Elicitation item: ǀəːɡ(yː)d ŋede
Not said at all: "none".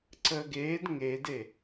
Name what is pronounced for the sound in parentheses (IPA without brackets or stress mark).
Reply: eː